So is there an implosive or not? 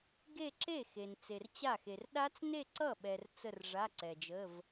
yes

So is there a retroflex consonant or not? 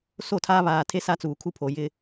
no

